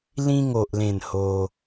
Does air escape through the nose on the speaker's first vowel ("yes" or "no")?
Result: yes